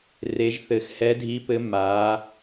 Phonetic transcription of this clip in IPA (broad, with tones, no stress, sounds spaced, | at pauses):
r e˨˦ ʒ θ ɘ˨˦ x h ɛ˨˦ dʱ i˨˦ p ɘ˨˦ m a˨˦